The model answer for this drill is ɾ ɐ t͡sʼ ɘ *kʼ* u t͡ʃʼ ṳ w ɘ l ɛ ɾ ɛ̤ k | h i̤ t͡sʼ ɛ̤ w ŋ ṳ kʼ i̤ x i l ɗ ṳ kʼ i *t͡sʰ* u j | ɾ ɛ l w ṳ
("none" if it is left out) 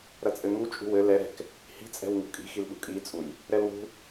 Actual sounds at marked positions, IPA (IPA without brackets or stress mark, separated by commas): ŋ, t͡sʼ